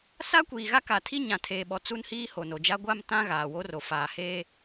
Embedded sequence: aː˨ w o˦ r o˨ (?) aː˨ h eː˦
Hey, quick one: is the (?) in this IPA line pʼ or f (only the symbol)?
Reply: f